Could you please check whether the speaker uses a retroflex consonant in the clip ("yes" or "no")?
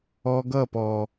no